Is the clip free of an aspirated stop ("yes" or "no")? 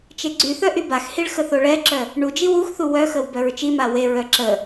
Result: yes